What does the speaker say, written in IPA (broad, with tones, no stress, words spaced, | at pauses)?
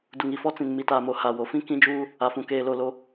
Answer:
du˨ŋi˨fɔ˦t͡sĩ˨n mi˨taː˨mo˨ ha˨wo˨ fĩ˦ kĩ˦d͡ʒuː˦ | a˨fũ˨ keː˨ lo˦˨lo˦